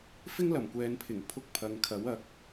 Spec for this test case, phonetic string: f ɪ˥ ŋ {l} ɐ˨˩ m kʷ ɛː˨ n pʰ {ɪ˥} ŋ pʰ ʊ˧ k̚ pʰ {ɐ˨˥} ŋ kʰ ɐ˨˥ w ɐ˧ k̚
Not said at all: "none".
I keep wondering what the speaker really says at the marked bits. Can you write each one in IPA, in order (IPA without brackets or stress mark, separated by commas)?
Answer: l, ɪ˨˩, ɐ˨